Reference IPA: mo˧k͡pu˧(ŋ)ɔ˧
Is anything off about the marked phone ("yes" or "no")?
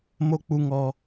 no